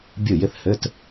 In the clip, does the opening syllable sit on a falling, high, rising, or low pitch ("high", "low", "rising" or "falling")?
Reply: falling